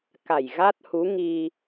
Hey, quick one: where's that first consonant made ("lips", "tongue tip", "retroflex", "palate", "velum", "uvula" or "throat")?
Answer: velum